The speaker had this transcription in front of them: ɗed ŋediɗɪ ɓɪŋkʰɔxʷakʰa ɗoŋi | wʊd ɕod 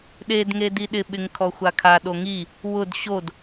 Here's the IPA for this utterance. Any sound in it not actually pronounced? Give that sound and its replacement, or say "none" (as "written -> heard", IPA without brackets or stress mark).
none